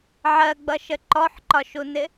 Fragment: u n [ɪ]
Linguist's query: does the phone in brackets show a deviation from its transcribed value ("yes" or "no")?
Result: no